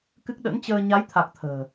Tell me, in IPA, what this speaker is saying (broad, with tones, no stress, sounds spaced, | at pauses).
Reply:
k ɨ˦˥ k̚ ɗ ə̰˧˥ n t͡ɕ əː˧ ɲ a˨˦ j t̪ʰ a˨˩ k̚ t̪ʰ ə̤ː˨˩